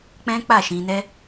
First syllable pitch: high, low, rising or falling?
high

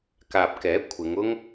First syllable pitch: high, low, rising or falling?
low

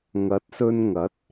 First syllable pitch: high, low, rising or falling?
rising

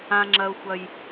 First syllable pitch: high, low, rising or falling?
high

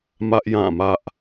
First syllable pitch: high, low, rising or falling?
high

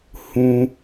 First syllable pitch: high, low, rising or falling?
high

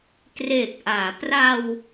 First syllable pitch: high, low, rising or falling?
low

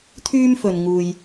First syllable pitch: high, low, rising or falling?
high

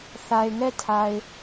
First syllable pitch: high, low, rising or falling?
low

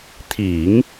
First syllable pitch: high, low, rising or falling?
low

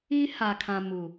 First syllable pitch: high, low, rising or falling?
high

